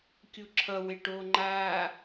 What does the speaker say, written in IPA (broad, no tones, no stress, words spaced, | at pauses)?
kʲuǁʰʌwe ʈoŋ͡ǃaː